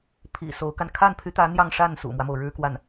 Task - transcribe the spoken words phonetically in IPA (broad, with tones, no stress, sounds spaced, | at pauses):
pʰ ḭ˨˩ s o˧˥ ʊ̯ k a˧ n kʰ a˥˩ n pʰ y˧˥ t̪ ä˧˥ n̪ j ɑ˥˧ ŋ ʂ a˥˩ n s ṵ˨˩ m w ä˦ m o˩ ʊ̯ ɻ ɻ̩˥ k w a˥˩ n